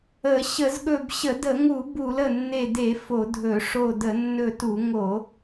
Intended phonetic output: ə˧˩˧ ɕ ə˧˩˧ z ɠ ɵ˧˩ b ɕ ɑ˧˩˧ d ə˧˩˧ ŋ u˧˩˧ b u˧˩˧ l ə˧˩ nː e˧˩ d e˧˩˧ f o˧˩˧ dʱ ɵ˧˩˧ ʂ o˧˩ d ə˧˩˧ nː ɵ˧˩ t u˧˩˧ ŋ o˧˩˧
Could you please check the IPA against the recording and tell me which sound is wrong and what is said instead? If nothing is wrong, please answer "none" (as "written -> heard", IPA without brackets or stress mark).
ɑ˧˩˧ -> ə˧˩˧